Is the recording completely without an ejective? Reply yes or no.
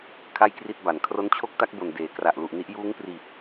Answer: yes